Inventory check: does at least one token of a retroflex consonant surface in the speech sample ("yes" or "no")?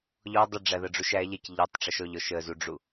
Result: yes